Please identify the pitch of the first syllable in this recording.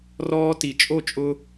high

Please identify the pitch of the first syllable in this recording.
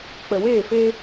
low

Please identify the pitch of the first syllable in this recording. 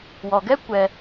low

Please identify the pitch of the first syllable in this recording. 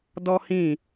high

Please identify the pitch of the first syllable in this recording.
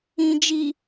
low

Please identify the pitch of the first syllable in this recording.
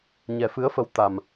low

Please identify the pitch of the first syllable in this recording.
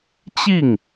falling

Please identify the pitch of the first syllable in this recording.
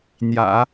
low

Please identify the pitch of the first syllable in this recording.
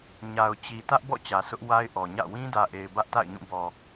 low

